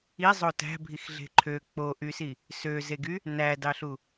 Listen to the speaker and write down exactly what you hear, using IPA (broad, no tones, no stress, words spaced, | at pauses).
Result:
izˤo tæ̤bʱixɮe̤ ǃʰø k͡poʔysi | søzeɡy | nædɑɬu